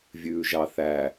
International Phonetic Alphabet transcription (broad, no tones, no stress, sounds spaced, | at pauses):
vʲ ʉː ʒ ɑ θ æ